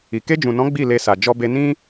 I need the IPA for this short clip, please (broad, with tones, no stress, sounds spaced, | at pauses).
i˨ k e˧ d͡ʒ ũ˨ n ɔ̃˨˦ ɡ͡b i˦˨ l e˧ s a˨ d͡ʒ ɔ˧ b e˧ n ĩ˦